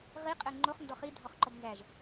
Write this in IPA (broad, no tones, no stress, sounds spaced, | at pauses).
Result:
ʁ i qʼ ɘ ŋ͡ǃ o χ n d ɔ χ i dʱ ɔ χ ǃ ɔ b n z æ ʒ